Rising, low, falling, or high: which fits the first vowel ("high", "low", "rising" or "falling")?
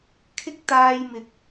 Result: high